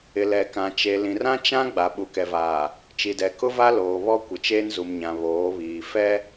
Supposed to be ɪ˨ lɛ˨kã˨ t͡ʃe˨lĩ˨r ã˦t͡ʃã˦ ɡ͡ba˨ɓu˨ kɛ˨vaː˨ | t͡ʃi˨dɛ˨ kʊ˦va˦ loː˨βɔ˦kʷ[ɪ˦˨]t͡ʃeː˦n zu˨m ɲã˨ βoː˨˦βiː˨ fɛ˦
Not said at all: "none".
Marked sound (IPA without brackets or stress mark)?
ɪ˨